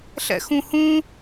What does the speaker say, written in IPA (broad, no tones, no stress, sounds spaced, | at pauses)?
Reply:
ɬ ɛ̰ x ũ h ũ